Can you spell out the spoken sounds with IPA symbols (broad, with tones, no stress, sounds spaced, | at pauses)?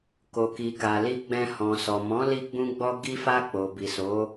k o˨ k i˨ k a˨ l i˧ ɡ͡b ɛ̃˧ h ɔ̃˨ s ɔ˨ m ɔ̃˨˦ l i˧ ɡ͡b ũ˧ ɡ͡b ɔ˧ ɡ i˧ f a˧ k͡p o˨ b i˨ s o˨˦